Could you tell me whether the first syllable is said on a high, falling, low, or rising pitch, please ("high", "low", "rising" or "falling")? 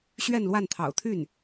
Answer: falling